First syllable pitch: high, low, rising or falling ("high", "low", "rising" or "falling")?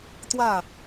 falling